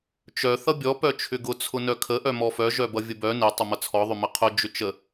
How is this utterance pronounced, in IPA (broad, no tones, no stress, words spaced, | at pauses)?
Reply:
t͡ʃœ θʌbʲɔ pœt͡ʃʰʏɡʊ t͡sʰʊnœkʰə ʔœmɔfœ ʒœbʌvʲəbœ ne tˤʊmʌt͡sʰɔ ðˤʏməqʰʊ d͡ʒʏt͡ʃə